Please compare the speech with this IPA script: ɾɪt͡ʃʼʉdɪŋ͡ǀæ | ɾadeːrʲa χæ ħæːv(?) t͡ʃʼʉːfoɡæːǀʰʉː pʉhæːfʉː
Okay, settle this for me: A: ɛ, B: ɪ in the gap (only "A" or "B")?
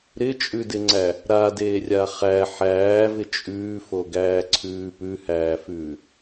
B